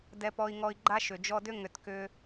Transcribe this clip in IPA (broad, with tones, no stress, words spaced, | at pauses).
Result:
dɛ˧pɔ˧i̯ŋɔ˧i̯ ɡ͡ǃa˦ʃʏ˨ d͡ʒɔ˧dʏ˦ ŋʏ˧tkʏ˦